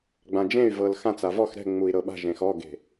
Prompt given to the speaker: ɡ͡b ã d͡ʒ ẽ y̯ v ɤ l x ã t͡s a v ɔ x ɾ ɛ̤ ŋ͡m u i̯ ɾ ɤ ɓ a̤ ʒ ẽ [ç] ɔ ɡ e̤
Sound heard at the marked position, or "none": x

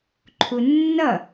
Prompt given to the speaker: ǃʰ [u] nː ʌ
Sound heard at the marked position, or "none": u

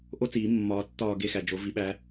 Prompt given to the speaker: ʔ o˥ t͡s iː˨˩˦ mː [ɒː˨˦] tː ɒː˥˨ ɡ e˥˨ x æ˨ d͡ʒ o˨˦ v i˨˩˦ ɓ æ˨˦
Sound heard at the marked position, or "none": ɒː˨˦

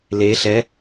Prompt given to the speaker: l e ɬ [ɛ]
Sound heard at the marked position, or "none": ɛ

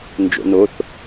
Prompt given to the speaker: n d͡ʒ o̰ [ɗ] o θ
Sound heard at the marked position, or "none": n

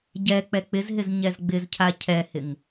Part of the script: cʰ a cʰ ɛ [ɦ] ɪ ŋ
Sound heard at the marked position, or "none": h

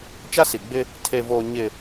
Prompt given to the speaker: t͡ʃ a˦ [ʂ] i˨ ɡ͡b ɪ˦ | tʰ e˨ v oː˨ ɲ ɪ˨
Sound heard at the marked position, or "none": s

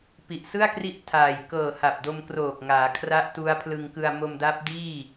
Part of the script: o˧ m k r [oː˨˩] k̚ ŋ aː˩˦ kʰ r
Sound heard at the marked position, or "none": oː˨˩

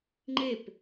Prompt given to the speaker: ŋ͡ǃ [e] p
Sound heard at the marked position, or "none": e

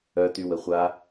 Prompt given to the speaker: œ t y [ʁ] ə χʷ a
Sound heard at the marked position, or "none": w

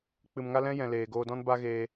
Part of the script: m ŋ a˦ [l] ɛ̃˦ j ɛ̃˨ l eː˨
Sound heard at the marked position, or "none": l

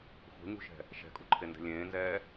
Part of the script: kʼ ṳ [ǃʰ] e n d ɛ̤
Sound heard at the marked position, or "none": ǃʰ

